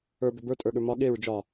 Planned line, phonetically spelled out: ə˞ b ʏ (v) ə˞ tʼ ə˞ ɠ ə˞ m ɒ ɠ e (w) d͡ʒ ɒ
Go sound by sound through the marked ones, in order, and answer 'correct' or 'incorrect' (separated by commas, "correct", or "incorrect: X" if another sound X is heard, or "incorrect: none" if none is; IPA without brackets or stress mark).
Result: incorrect: b, incorrect: ɹ